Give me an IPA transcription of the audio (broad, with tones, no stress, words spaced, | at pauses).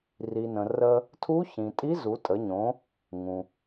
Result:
ri˩nə̃˩ rə˧ | tʰu˧˥çĩ˩ tʼi˧˥zu˩˧tʼə˩˧ ɲõ˩˧ | ŋũ˩